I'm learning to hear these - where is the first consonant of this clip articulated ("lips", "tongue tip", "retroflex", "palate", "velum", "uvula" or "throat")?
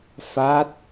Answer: lips